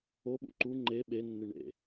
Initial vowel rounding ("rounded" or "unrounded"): rounded